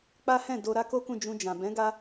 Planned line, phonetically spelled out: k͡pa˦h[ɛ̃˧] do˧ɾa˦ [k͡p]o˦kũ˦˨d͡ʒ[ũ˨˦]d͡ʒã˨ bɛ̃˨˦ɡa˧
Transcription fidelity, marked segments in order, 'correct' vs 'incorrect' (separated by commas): incorrect, incorrect, incorrect